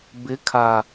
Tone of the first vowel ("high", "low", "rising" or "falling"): rising